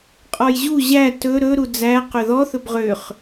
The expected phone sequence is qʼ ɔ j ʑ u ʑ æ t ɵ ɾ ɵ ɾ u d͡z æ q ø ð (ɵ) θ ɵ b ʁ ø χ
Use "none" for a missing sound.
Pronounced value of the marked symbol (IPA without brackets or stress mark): ɔ